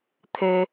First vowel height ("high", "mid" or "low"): mid